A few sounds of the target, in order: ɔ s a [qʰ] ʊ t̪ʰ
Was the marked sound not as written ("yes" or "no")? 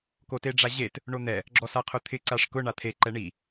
no